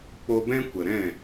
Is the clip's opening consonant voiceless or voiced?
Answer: voiceless